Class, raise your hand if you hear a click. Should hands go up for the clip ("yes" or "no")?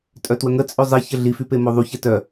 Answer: no